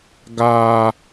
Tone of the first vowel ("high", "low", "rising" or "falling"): high